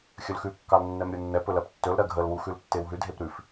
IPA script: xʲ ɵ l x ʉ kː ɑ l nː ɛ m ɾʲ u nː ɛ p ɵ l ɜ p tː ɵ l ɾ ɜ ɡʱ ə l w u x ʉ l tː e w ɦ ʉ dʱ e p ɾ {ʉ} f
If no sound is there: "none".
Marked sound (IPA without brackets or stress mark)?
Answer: ʉ